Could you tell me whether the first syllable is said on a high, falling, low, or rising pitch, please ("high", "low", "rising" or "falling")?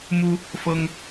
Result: high